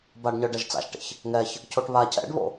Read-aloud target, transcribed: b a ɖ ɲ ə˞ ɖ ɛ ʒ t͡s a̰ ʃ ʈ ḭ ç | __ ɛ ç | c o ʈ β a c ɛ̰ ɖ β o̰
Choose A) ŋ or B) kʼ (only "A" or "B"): A